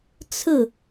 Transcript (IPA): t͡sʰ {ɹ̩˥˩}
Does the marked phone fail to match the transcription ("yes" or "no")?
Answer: no